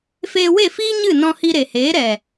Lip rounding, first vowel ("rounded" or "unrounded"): unrounded